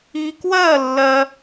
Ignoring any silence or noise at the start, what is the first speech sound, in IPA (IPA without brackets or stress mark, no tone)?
i